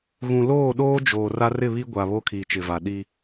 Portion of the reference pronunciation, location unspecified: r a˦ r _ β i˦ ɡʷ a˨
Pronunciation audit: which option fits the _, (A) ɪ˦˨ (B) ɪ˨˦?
A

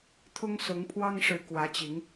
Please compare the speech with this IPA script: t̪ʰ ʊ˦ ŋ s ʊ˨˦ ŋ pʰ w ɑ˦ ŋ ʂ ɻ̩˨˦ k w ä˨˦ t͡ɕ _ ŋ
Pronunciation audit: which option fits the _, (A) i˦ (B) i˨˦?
B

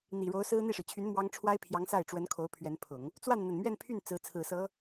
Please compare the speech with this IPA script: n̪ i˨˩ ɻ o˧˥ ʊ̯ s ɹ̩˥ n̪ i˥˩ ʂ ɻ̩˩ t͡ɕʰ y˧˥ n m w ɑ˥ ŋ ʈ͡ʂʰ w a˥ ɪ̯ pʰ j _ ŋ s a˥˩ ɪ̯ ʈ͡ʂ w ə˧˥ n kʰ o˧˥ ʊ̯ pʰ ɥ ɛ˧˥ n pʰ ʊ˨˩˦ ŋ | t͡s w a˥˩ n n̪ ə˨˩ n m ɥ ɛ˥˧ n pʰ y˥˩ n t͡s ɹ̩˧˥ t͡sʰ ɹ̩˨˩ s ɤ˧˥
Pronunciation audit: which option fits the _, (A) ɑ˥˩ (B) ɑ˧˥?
B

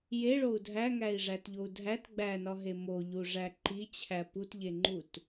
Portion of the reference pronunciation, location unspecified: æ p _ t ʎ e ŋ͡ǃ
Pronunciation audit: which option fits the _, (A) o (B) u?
B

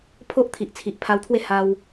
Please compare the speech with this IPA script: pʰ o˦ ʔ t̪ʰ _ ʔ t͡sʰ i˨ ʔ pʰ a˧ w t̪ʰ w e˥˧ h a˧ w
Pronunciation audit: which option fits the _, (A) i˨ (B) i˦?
A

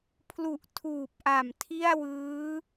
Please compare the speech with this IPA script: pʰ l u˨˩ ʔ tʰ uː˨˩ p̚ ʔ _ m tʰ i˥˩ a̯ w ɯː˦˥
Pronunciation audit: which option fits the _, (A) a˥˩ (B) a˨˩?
B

